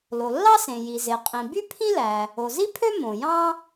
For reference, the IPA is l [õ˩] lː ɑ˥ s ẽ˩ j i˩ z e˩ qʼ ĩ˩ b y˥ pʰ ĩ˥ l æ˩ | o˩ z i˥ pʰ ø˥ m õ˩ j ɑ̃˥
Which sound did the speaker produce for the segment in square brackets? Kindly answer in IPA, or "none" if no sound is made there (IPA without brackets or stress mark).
o˩